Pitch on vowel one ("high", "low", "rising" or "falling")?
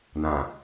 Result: low